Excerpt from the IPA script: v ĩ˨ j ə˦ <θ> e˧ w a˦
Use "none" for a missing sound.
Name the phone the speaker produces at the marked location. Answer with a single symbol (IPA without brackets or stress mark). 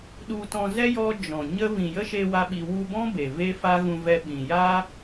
ʃ